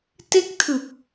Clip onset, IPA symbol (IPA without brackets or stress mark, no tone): t